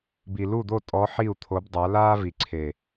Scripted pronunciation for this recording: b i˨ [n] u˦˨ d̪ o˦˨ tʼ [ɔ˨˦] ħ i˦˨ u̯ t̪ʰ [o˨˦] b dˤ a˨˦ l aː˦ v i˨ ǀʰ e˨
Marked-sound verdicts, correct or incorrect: incorrect, correct, correct

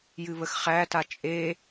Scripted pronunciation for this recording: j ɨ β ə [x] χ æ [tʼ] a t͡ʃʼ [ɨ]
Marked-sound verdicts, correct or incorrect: correct, incorrect, incorrect

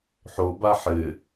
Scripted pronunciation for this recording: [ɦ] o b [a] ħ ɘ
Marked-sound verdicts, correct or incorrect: incorrect, correct

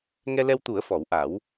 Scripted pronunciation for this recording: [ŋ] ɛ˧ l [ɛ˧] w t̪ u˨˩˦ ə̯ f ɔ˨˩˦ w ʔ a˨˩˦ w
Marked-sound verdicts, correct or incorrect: correct, correct

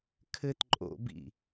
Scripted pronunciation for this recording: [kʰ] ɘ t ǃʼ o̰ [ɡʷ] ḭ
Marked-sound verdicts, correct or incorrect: correct, incorrect

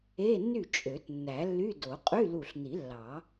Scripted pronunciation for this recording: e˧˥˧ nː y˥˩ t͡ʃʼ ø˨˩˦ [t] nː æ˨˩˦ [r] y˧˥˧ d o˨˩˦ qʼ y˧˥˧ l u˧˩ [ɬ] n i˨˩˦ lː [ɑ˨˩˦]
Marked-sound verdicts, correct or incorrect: correct, incorrect, correct, correct

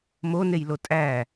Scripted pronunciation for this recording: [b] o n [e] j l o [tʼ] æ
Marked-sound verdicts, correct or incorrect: incorrect, correct, correct

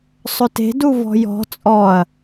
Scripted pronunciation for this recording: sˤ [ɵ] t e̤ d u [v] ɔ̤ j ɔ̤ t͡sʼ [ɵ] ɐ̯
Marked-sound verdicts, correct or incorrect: correct, correct, incorrect

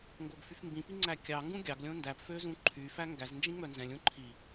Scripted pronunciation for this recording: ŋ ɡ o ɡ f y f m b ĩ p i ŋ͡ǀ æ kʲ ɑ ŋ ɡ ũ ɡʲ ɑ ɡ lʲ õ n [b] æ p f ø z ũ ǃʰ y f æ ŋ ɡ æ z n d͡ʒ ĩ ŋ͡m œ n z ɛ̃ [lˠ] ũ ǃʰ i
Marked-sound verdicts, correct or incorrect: incorrect, incorrect

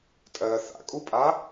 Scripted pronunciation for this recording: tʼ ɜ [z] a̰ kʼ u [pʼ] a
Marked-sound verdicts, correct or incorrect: incorrect, correct

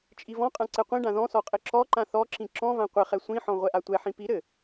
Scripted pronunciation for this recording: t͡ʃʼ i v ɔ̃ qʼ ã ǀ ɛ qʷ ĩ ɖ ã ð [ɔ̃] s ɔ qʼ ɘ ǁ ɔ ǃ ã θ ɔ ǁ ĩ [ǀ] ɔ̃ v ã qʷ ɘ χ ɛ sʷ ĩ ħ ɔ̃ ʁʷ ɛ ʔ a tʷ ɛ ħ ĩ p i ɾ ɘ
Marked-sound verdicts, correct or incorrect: correct, incorrect

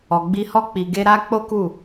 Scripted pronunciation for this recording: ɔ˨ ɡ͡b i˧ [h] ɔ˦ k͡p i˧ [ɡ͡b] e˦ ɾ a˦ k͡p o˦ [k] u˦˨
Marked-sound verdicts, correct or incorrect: correct, incorrect, correct

